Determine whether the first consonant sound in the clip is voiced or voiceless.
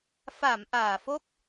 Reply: voiceless